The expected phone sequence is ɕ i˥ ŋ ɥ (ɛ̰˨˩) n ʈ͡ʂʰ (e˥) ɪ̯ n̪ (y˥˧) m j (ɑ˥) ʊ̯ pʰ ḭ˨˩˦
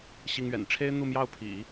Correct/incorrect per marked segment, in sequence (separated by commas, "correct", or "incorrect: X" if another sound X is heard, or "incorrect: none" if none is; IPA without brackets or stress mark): correct, correct, incorrect: u˥˧, incorrect: ɑ˥˩